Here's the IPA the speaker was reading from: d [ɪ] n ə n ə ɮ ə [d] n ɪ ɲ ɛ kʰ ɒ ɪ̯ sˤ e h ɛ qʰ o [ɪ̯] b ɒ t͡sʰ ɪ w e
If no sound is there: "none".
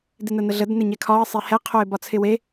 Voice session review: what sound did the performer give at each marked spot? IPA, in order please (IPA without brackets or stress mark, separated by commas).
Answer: ɪ, d, ɪ̯